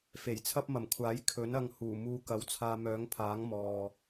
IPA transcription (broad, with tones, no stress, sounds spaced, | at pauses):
f e˨˩ j t͡sʰ ɐ˥ p̚ m ɐ˨˩ m kʷʰ aː˨˥ j kʰ ɵ˨˥ n ɐ˧ ŋ h uː˨˩ m uː˧ k ɐ˨˧ w t͡sʰ aː˧ m œː˨˥ ŋ pʰ aː˨˥ ŋ m ɔː˨